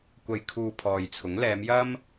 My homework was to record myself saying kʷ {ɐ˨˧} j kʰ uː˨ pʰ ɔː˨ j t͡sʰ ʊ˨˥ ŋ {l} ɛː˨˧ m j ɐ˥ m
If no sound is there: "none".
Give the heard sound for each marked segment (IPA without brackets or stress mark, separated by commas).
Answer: ɐ˨, l